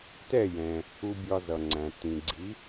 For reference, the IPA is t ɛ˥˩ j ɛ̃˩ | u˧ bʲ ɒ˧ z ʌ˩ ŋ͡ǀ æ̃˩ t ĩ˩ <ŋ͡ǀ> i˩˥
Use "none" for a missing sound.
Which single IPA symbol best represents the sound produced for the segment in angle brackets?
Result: ɡ͡ǀ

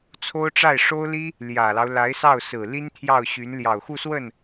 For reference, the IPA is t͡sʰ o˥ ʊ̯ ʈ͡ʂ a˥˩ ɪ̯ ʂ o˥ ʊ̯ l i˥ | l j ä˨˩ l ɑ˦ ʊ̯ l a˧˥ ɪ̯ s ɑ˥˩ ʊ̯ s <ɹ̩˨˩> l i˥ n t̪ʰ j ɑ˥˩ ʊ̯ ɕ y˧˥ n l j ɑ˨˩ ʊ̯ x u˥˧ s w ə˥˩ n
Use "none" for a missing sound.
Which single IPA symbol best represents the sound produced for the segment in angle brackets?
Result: ɹ̩˨˩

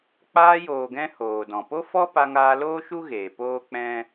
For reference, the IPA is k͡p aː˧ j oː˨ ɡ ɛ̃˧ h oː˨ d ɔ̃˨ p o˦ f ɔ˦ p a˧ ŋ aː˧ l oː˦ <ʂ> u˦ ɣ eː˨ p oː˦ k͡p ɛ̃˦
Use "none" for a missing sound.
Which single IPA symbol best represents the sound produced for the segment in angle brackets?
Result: ʃ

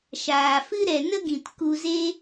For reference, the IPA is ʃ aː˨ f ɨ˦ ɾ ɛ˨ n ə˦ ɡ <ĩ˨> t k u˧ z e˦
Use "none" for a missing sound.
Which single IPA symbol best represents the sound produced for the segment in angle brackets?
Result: ĩ˨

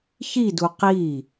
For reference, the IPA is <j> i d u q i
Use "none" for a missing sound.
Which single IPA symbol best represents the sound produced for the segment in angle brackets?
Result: ç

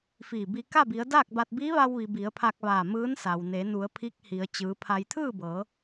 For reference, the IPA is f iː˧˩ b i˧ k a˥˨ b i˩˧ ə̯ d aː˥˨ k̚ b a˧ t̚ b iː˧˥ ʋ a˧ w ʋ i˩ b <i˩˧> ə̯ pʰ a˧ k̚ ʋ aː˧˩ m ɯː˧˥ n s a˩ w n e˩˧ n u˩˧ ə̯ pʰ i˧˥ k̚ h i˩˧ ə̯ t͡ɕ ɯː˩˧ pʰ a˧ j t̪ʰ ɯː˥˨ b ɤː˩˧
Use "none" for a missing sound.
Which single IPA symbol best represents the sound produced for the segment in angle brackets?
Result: i˩˧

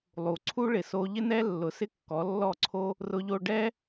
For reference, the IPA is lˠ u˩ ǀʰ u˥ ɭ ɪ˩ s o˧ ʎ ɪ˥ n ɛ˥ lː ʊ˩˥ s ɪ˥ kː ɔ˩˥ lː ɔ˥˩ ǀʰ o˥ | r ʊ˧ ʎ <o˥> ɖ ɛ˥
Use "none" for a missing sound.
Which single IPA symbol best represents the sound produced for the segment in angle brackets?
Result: o˧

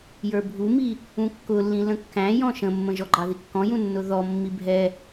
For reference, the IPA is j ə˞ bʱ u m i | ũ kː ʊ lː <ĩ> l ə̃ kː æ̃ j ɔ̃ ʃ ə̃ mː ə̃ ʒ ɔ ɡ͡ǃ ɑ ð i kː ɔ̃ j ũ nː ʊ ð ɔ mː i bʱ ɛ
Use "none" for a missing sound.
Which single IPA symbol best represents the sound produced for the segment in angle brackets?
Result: ĩ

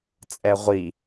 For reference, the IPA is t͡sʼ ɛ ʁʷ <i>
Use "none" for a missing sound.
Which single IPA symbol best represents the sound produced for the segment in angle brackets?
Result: iː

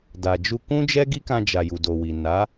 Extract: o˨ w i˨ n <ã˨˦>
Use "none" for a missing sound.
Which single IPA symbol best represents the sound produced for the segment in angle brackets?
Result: a˨˦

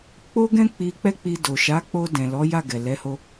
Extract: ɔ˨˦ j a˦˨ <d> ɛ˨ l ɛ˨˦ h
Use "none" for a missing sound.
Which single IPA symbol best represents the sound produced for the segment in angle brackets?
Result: ɡ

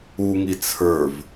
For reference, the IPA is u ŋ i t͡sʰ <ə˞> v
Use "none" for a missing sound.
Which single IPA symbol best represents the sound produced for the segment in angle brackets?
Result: ə˞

